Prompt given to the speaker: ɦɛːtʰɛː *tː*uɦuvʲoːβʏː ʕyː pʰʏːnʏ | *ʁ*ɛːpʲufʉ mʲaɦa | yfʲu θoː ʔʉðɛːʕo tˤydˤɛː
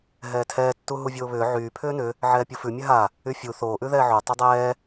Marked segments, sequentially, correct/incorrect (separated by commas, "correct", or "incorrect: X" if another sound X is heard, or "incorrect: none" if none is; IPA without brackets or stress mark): correct, incorrect: ʕ